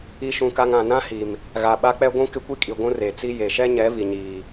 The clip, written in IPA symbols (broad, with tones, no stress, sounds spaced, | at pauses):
i˨ ʃ ũ˨ k a˨ ŋ ã˨ n ã˦ h i˨ m | ɣ a˨ ɓ a˦ k͡p ɛ˦ ɡʷ ũ˦ k ɪ˦ kʷ i˦ kʼ i˨ ɡʷ ũ˦ r e˨ t͡s i˦ j e˨ ʃ ɛ˦ ɲ ɛ˨˦ v i˨ ɲ iː˨